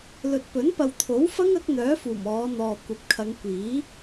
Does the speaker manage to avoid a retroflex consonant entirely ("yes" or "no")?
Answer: yes